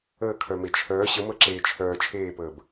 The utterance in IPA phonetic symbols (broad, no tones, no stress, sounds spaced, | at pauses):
əː kʰ œ m e t͡ʃʰ œː ɕ ə m əː ǁ eː t͡ʃʰ œː t͡ʃʰ eː p əː b